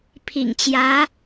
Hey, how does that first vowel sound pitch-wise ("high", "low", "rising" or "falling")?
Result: low